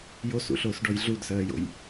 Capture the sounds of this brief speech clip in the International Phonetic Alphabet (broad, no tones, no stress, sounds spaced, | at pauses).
j o s ṵ ɬ oː s ɖ ɔ j ɮ u d s ɜː j o̰ j